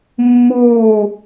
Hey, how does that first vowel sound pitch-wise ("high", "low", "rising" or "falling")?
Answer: falling